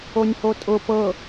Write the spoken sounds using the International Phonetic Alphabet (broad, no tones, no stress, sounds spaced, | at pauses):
o nʲ h o tʼ ʊ p ɤ